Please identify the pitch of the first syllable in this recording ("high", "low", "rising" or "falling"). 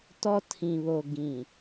high